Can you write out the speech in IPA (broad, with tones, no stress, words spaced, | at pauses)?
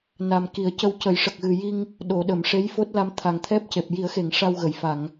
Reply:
na˨˩mki˨˩˦ə̯cə˧w cə˨˩˦jʂə˨˩k̚ɣɨ˨˩ji˧ŋ | ɗo˨˩˨ ɗə˨˩˨m ʂe˧˥jfo˦˥t̚la˧m t̪ʰa˨˩ŋt̪ʰɛ˦˥p̚ce˨˩p̚ ji˨˩˦ə̯xe˨˩˨ŋ ʂa˧wɣə˨˩˨jfa˨˩˨ŋ